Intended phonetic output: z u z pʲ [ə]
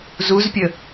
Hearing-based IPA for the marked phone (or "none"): ə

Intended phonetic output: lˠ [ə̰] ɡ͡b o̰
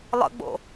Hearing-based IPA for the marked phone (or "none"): ə̰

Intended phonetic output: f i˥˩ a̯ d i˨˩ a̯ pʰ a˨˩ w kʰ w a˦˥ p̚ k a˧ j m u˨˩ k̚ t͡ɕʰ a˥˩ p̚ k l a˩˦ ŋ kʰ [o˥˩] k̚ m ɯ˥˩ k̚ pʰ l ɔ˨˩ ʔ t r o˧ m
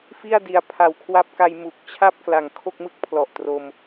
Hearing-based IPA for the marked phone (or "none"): o˥˩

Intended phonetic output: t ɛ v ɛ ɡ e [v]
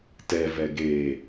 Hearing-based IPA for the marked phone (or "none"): none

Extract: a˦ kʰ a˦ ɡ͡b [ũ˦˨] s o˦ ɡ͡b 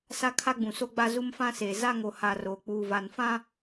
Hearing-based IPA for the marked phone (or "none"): ũ˨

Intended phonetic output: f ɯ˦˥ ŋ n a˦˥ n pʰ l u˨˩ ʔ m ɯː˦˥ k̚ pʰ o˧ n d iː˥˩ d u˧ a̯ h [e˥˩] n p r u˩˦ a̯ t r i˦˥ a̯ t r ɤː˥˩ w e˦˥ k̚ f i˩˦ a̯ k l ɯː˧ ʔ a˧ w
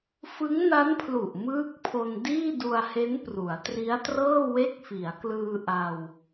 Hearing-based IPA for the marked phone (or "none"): e˦˥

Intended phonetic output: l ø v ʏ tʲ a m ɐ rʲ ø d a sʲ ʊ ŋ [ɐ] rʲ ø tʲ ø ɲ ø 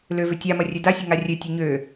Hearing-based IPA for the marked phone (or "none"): a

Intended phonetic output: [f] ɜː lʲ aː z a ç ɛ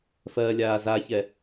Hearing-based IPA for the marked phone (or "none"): f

